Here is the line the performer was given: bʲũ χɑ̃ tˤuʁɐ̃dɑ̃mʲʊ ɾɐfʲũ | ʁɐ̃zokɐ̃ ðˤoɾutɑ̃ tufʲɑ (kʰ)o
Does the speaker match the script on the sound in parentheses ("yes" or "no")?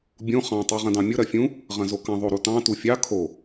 yes